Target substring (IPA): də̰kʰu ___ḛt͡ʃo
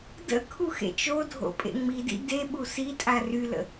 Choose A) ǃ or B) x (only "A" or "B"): B